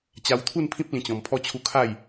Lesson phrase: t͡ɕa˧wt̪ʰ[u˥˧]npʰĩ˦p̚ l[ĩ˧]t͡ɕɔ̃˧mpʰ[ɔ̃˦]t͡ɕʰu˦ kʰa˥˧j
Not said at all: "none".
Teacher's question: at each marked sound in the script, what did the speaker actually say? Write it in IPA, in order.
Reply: u˥˧, ĩ˧, ɔ˦

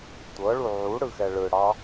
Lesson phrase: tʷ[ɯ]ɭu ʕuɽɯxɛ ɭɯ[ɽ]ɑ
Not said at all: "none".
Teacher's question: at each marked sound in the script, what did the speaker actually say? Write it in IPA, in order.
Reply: ɤ, ɽ

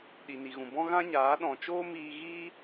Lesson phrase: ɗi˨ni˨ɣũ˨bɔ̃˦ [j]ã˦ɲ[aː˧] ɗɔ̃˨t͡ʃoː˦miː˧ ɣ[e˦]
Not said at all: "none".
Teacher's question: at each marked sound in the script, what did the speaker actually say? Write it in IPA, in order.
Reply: ɣ, aː˨˦, i˦

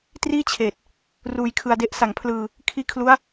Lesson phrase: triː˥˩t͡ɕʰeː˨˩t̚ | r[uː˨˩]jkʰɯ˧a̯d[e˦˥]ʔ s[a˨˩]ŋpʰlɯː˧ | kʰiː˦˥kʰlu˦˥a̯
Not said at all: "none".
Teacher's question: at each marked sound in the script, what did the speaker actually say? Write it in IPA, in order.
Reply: uː˧, e˦˥, a˨˩

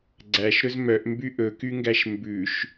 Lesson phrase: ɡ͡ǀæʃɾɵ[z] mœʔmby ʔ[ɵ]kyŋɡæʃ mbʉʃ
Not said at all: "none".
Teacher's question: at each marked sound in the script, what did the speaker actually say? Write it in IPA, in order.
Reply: z, ɵ

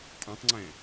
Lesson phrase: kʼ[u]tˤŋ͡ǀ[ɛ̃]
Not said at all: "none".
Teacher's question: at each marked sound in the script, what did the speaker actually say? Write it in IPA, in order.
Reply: ũ, ɛ̃

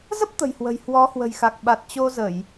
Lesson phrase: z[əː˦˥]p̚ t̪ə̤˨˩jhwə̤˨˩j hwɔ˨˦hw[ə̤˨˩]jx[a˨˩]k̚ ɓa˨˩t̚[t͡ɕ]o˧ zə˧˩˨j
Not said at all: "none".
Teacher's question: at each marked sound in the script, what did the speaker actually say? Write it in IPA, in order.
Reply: ə˦˥, ə̤˨˩, a˨˩, t͡ɕ

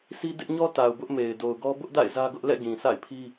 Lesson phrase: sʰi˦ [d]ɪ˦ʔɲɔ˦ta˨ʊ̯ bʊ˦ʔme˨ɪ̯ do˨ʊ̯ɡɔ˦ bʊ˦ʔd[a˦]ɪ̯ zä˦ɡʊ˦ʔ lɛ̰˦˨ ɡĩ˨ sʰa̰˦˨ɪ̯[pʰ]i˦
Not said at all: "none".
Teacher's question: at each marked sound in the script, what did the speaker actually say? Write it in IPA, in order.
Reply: d, a̰˦˨, pʰ

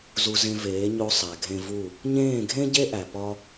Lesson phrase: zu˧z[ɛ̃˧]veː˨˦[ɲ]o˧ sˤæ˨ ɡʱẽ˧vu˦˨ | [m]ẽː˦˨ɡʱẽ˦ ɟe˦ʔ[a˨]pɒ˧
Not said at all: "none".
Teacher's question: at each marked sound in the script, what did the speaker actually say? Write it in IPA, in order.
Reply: ẽ˧, ɲ, ɲ, æ˨

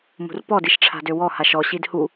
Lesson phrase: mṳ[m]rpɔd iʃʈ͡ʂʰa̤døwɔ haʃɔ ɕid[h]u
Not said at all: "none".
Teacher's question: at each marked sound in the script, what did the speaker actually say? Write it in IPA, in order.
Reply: none, h

